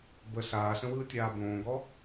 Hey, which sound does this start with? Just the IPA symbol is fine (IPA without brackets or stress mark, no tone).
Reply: b